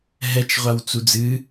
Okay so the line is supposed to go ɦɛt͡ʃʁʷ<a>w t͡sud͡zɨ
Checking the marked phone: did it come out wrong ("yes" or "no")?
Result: no